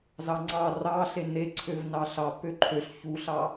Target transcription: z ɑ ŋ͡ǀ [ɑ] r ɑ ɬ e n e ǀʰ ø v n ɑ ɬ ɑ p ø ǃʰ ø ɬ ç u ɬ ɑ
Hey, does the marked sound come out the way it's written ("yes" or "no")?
yes